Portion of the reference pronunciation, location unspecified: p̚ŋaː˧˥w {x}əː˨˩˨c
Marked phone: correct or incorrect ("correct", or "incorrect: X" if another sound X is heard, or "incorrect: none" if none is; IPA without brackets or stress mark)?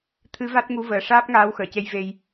correct